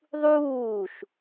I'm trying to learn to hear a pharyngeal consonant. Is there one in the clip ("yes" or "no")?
no